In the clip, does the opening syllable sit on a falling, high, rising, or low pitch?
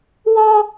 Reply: high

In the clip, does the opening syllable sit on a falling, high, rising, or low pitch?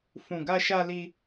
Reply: low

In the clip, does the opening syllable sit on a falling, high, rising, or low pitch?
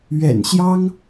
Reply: low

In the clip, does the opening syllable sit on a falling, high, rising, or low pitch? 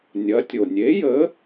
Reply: rising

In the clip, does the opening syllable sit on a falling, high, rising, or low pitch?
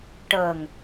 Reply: low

